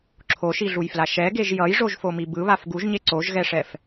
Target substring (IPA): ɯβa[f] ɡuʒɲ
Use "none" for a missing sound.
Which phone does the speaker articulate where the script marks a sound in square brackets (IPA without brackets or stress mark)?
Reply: f